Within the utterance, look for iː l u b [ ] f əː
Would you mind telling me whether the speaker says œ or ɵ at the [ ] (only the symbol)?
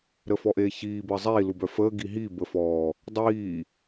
œ